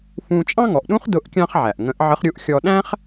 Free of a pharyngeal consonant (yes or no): no